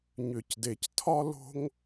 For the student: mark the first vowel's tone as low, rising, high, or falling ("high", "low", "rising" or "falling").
low